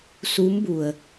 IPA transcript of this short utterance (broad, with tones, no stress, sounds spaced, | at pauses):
s u˧˥ m b u˩ ə̯